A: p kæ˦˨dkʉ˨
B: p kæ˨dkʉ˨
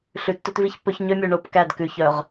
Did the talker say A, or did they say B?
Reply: A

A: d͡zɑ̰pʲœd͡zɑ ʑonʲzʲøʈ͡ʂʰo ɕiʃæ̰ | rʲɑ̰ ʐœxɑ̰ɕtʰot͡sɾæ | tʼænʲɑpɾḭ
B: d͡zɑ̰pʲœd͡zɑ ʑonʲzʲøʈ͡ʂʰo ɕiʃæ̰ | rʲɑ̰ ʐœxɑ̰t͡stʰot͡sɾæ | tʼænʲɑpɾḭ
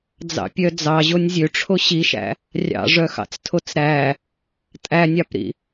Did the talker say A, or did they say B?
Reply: B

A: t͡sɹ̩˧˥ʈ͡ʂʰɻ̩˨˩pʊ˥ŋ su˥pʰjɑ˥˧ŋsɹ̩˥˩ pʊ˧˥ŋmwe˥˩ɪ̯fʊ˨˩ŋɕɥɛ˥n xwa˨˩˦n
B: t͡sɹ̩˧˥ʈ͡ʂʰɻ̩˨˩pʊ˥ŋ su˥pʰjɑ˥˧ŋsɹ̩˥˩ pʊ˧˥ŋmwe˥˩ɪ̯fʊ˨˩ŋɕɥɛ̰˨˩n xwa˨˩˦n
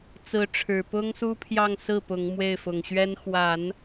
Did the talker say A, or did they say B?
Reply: A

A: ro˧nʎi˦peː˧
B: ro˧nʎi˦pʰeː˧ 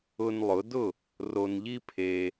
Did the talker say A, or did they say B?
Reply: B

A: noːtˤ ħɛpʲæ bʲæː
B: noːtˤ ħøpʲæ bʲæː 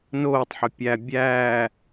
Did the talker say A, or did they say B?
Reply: B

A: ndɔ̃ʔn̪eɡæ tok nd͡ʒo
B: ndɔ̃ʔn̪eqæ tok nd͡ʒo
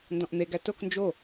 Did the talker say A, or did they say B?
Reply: A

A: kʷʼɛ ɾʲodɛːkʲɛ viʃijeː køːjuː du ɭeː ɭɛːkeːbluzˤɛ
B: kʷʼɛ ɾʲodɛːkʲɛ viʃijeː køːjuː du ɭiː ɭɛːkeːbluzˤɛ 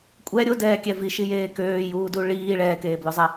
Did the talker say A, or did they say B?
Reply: B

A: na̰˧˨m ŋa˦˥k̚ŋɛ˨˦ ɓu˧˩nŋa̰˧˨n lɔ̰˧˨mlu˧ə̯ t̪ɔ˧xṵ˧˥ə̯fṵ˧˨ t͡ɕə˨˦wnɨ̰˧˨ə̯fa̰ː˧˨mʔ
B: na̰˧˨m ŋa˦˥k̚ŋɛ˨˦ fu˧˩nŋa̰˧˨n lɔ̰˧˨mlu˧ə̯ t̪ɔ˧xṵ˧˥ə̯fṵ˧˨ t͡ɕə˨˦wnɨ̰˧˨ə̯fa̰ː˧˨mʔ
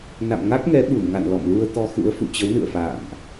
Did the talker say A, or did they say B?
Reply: A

